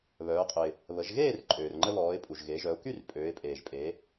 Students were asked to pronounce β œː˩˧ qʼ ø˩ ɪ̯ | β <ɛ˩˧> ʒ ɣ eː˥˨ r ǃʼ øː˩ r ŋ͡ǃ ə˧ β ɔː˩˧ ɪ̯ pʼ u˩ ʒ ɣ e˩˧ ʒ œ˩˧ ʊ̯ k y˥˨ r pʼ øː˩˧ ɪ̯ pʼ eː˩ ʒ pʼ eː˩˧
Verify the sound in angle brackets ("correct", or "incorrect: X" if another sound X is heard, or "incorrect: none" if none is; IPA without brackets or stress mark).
incorrect: ə˩˧